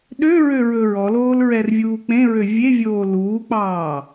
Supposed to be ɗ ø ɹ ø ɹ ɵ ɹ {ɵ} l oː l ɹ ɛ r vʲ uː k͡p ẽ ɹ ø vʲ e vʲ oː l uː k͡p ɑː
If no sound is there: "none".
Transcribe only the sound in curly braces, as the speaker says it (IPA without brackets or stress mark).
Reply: ɔ